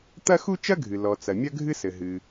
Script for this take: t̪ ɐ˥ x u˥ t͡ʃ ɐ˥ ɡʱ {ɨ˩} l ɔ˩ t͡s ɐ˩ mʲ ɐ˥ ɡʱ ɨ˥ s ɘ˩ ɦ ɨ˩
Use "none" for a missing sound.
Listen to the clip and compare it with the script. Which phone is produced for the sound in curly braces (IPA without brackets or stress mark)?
ɨ˩